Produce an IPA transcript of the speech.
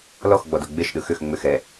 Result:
l ɔ x ɡ͡b ɔ d o ɡ͡b e ʃ ɗ ɯ x ʏ x ŋ͡m ʏ x ɛ

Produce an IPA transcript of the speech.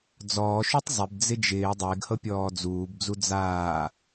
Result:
d͡z ɔː ʃ u tˤ zˤ ɪ b d͡z ɪ d͡ʒ ɪː dˤ ɪː ɡ h ɤ pʲ ɔː d͡z uː b d͡z u d͡z aː

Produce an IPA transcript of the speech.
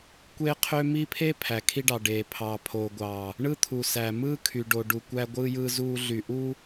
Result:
kʷ eː˦ qʰ ø˦ m i˦ pʰ e˦ pʰ æ˨ kʰ i˦ ɖ ɑ˨ ɖ eː˨ pʰ ɑː˨ pʰ oː˨ ɡʷ ɑː˨ | ɳ ɯ˦ t̪ʰ u˨ s æ˨ m ɯː˦ kʰ y˨ ɖ o˨ ɖ u˨ kʷ æ˦ ɡʷ ɯː˦ j ɯː˦ z uː˦ ɮ y˨ ʔ u˦

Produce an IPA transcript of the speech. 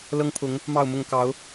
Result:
l ɤ˦ ŋ pʰ ʊ˨˦ ŋ | m ɑ˥˨ ʊ̯ m ʊ˥˨ ŋ k ɑ˨˦ ʊ̯

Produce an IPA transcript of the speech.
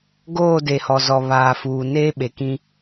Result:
ɡ oː˦˨ d e˨ h ɔ˨ z ɔ˨ β aː˨ f uː˨ n eː˦ ɓ e˨ k ĩ˦

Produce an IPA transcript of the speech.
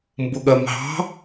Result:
m b ʊ ɠ ɜ m ɦ ɑ̤

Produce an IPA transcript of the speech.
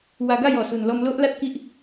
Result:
w a˧ ɡ a˥˧ j ɔ˨˩ s u˨˩ n l ɔ˧ m l o˦ ʔ l a˦ t̚ k i˦ ʔ

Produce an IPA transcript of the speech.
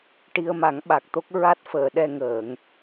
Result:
ʈ i˧ ə̯ m a˨˩˦ ŋ ɓ a˨˩ k̚ t̪ o˦˥ k̚ ɹ a˦˥ t̚ f əː˨˩˨ ɗ ɛ˧ ŋ əː˨˩˨ ŋ

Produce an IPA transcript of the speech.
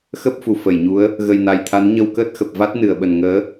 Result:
x ə˦˥ p̚ f u˧˩ f ə˧˩ j ɲ u˨˦ ə̯ | ɣ ə˨˩ j n a˨˩ j t̪ʰ a˨˦ n ɲ ə˧ w k əː˦˥ t̚ x ə˨˩ p̚ v a˦˥ t̚ n ɨ˧˩ ə̯ ɓ ə˨˩ n ŋ əː˨˦

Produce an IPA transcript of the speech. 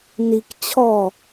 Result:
n i k t͡ɕʰ ɔ

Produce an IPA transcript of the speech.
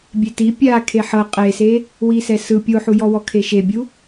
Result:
bʲ e t i pʲ a kʰ e ħ ɤ qʼ e s e | w i s ɛ s ɯ pʲ o ħ u j ɔ w ɔ kʰ e ʃ e bʲ u

